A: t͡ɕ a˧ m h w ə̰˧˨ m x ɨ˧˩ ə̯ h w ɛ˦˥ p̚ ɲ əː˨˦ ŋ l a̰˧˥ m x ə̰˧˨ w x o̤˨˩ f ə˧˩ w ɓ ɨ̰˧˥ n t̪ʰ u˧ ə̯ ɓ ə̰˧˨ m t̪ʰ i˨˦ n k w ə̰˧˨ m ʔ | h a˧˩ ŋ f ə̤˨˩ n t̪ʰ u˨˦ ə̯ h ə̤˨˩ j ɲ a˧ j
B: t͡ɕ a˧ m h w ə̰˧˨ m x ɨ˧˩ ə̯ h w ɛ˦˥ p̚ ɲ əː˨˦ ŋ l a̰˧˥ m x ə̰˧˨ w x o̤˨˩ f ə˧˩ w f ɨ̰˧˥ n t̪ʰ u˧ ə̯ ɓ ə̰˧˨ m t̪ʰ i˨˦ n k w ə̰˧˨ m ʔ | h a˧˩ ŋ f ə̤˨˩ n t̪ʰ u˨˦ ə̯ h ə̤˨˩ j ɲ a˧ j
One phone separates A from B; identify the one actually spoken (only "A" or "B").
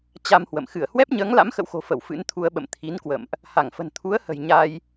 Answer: B